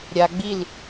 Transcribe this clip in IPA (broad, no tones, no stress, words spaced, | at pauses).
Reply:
ɾʲa ɡ͡bil